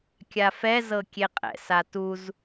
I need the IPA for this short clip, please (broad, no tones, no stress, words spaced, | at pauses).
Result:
kʲafɛ zɤkʲeqʼɛ̰ satuz